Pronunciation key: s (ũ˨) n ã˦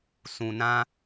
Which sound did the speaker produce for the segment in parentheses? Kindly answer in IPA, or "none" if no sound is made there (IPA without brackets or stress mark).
ũ˨